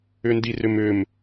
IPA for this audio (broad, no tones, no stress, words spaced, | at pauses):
ʏndirʏmʏm